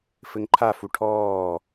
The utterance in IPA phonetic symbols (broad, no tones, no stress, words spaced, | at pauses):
fɘŋǃʰafu ʈʰɔː